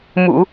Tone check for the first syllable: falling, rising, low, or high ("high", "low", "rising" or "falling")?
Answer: low